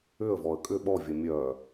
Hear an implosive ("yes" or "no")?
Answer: yes